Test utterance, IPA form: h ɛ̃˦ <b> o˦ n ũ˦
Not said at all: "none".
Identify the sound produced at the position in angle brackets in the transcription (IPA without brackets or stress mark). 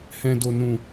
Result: d